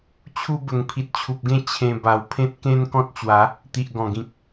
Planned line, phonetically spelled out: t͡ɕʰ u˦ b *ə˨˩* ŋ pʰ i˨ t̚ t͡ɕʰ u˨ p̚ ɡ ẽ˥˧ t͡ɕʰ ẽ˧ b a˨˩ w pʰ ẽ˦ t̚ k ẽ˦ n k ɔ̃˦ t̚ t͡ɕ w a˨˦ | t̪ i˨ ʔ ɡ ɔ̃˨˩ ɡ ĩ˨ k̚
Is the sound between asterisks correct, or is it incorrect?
correct